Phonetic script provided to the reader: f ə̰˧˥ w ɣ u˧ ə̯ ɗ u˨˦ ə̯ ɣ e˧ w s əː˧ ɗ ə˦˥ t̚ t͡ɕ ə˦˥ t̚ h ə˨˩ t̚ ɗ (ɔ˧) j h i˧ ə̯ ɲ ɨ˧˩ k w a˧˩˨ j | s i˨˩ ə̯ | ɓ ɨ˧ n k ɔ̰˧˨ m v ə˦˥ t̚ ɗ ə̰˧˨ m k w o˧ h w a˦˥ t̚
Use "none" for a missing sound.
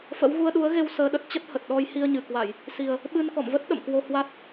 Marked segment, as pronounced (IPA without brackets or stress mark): ɔ˧